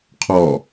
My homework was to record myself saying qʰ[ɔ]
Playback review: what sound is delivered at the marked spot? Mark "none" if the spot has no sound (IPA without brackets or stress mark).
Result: ɔ